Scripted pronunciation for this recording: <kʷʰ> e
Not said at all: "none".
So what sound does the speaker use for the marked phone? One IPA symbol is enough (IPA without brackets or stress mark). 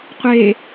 qʷ